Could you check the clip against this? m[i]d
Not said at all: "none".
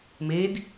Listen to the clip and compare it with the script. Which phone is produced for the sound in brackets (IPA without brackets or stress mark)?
e